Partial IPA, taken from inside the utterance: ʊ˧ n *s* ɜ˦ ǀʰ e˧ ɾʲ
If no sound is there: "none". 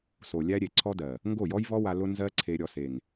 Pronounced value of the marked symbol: z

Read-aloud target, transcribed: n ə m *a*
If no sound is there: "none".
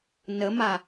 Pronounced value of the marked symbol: a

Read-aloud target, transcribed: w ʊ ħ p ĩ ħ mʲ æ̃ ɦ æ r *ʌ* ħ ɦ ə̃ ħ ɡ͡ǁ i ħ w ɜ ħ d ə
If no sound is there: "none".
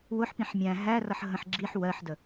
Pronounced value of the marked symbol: ʌ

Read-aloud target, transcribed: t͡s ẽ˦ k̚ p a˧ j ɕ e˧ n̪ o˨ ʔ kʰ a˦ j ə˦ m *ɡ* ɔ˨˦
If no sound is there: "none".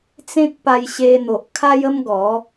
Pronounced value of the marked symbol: ɡ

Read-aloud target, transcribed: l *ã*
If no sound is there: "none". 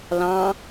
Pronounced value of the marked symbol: ɑ̃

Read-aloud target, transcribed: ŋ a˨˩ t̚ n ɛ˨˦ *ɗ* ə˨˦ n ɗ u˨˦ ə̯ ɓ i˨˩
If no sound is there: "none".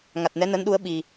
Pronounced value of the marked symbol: n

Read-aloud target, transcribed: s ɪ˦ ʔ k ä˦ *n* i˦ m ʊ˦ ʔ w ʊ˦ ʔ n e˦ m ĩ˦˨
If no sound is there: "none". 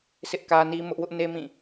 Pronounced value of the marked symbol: n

